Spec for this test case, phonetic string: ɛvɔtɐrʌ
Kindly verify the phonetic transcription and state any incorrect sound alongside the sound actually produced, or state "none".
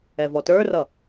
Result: ɐ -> ə˞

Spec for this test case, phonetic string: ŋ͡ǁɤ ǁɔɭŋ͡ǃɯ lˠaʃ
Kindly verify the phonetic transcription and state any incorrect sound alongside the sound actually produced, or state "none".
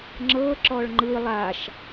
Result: none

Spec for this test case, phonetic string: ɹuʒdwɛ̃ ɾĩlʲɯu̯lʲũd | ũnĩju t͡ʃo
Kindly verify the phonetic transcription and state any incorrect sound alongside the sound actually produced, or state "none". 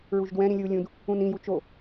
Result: none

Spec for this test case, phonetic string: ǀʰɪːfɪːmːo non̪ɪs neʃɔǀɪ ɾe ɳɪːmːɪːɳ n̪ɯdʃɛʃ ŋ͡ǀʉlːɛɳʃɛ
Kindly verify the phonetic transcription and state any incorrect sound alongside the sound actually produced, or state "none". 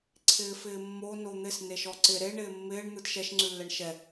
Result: none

